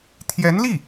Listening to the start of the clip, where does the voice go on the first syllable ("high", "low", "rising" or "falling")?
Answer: rising